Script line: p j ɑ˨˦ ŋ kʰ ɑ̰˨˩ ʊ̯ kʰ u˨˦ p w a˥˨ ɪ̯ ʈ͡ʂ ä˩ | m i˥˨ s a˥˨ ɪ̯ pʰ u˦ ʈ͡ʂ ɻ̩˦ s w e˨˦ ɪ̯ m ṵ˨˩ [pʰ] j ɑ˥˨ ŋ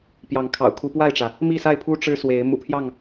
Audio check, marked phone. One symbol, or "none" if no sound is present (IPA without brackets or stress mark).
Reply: pʰ